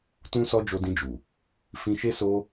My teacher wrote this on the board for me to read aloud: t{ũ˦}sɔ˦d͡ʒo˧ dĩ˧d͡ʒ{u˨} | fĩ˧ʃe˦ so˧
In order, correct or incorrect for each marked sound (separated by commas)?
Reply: correct, correct